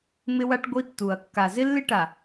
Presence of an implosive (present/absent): absent